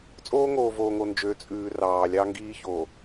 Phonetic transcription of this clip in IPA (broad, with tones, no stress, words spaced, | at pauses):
t͡sʼoː˦ŋoː˨voː˨ŋo˨ nd͡ʒø˨˦ t͡sʼʉː˨ rɑː˨ lʲɑ˦ŋɡiː˦çoː˨